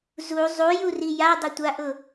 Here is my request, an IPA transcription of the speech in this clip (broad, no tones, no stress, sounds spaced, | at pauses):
z u zˤ u j u r i j a dˤ ɪ tʷ a ʔ ʊ